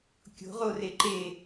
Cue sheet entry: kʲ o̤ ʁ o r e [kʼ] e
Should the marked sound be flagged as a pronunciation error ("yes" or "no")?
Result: yes